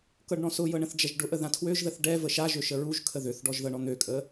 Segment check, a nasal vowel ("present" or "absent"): present